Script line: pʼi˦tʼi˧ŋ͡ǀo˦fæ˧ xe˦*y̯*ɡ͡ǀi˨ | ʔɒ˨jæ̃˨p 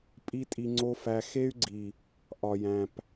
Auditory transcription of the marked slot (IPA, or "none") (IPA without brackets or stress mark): y̯